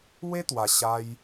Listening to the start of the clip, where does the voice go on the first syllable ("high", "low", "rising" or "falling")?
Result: high